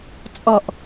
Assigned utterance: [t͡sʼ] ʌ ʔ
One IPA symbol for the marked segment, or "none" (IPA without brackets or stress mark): t͡sʼ